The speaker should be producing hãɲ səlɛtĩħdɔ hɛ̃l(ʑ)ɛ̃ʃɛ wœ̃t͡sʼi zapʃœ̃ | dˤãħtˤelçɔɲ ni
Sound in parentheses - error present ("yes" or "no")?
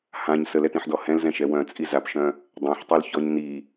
yes